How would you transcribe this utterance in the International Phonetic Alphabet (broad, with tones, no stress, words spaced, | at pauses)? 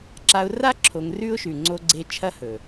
ǁa˧ʊ̯ra˦ ǁʰo˧ŋrʉ˦ʊ̯ʃʉ˨ ŋ͡ǀo˧ɡ͡ǀe˧ t͡ʃʰɐ˦hɵ˨